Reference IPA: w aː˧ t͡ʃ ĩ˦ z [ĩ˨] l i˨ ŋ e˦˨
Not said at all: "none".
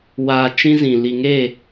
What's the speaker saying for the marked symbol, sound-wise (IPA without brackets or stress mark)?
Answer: ĩ˨